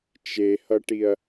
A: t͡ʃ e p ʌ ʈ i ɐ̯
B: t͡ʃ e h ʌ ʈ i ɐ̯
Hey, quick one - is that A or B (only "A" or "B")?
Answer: B